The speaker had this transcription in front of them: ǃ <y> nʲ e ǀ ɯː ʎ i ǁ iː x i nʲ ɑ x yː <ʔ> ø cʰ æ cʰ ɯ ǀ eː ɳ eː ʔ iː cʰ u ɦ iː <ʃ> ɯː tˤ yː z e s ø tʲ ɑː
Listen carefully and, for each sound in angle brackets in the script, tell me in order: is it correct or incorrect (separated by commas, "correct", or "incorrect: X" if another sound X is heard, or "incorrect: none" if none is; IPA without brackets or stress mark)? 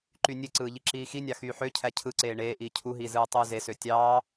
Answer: correct, incorrect: ħ, incorrect: z